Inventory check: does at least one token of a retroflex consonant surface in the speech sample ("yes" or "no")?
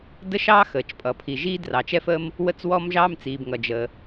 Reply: no